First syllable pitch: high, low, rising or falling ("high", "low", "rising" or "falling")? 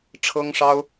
high